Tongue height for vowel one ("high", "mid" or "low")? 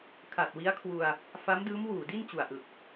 low